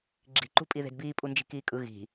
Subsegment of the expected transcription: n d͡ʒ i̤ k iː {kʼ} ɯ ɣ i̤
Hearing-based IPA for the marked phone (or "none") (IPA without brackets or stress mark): kʼ